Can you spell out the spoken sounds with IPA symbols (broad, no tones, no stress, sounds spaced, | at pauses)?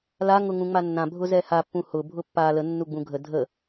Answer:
l a ŋ ʊ ŋ ũ ŋ͡m a nː ã bʱ ʊ z ɛ h a pː ũ h ʊ bʱ ʊ pː a l ə nː u ɡ͡b ũ ɡʱ ə dʱ ə